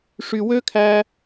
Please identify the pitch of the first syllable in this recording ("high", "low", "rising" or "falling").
low